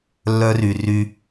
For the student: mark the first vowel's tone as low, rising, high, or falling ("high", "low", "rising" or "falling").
high